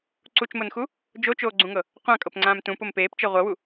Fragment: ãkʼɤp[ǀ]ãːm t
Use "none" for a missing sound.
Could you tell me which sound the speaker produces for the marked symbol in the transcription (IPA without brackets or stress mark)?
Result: ŋ͡ǀ